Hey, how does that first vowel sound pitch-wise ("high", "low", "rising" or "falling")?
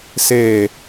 low